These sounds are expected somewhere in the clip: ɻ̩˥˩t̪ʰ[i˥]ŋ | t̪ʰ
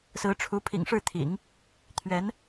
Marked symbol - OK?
no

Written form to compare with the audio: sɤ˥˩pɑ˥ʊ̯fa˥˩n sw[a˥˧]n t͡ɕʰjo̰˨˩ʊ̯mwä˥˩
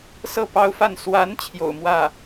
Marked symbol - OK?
no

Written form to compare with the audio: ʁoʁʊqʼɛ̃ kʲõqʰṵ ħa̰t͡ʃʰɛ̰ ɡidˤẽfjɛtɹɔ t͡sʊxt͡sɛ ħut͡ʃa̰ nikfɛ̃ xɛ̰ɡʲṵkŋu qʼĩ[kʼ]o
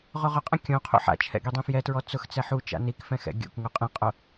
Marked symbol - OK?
no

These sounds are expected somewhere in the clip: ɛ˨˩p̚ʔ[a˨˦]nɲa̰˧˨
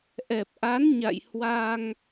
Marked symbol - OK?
yes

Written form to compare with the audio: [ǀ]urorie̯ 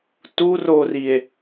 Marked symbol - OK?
no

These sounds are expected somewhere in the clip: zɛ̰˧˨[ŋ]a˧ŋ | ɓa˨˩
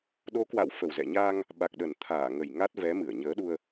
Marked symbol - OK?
no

